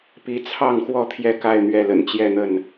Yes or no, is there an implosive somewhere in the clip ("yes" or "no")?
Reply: no